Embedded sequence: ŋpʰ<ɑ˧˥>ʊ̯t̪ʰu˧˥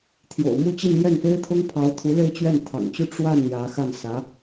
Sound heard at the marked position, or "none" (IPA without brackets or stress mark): ɑ˧˥